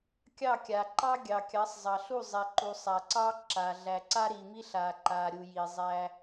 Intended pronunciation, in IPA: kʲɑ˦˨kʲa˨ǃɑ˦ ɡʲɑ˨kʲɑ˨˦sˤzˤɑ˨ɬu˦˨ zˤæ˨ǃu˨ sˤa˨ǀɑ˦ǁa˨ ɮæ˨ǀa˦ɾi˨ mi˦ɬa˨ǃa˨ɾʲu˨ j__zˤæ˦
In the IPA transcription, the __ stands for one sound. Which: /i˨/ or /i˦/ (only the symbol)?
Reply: i˨